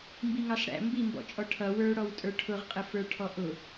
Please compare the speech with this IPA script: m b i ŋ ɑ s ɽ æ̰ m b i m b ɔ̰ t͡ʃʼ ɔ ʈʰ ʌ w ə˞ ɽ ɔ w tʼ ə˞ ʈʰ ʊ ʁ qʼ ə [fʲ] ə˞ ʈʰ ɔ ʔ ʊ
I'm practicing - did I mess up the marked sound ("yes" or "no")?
yes